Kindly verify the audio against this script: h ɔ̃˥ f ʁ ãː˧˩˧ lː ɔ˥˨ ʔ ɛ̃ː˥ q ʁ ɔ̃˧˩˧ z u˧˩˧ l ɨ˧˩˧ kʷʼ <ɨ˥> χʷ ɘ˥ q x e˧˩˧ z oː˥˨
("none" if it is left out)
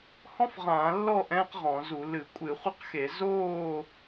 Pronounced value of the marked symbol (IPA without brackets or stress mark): ɨ˧˩˧